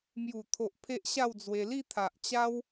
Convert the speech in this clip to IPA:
m j u˨˩ t̪ʰ o˨ ʔ pʰ e˦ ʔ ɕ a˥˧ w d͡z w e˧ l i˥˧ t̪ʰ a˨ ʔ t͡ɕ a˦ w

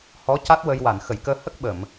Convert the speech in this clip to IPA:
h ɔ˧˥ c a˦˥ t̚ w ə˧ j w a˨˩˨ n x ə˨˩˨ j k əː˧ h ə˦˥ k̚ ɓ ə˨˩˨ m

